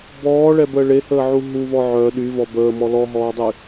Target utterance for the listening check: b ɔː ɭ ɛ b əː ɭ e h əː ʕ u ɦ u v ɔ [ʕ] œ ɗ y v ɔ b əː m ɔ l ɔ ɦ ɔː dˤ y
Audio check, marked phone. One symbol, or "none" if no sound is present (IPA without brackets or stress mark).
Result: ʕ